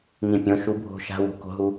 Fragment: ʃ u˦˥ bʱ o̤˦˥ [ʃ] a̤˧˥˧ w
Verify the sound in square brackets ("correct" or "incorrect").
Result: correct